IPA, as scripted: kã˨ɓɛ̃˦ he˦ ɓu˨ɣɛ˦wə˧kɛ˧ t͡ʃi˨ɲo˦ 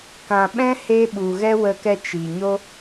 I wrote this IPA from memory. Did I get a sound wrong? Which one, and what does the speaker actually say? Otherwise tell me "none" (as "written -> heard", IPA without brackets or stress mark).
none